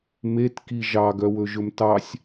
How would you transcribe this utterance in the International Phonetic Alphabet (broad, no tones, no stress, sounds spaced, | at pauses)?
m e t k i ʒ ɑ ɡ œ w ɵ ʒ ɵ m t ɑ sʲ